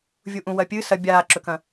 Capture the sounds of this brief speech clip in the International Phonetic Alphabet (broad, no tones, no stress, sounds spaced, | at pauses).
vʲ u ʔ ũ w ɐ pʲ ɨ s ɐ bʲ aː ǁ ɵ k ɐ̃